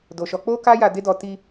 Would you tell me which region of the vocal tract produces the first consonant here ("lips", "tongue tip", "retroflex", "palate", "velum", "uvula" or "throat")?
tongue tip